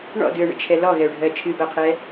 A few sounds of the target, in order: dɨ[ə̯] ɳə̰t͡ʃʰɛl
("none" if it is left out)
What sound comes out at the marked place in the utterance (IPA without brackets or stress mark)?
ə̯